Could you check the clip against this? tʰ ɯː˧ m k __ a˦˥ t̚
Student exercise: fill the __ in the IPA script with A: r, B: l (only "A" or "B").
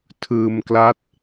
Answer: B